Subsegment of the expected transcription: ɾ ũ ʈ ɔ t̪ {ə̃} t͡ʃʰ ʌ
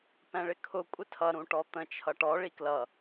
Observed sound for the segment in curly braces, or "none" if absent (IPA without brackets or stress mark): ə̃